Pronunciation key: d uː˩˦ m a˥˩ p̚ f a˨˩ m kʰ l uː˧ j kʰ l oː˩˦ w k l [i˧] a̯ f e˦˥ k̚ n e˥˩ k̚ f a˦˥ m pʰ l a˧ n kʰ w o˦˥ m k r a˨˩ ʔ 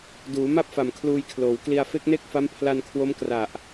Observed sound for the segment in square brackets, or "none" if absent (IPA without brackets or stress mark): i˧